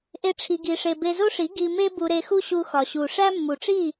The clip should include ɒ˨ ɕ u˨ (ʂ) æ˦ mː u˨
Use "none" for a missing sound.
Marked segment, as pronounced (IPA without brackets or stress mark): ʂ